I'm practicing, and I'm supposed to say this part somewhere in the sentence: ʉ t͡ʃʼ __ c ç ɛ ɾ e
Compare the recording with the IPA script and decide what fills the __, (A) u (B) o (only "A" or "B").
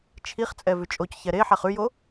B